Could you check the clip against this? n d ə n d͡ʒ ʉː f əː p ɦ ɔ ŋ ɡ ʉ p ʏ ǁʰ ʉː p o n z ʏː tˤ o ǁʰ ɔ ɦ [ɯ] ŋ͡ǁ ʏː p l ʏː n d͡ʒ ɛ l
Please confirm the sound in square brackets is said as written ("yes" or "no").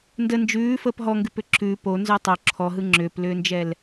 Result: yes